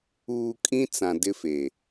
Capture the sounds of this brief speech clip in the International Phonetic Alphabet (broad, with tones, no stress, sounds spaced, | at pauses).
uː˨ kʼ ĩ˦ t͡s ã˨ d ɪ˦ f e˨